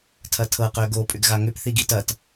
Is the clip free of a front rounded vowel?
no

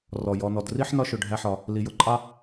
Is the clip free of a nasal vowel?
yes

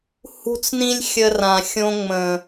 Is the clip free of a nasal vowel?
no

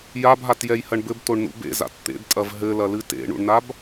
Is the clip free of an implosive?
yes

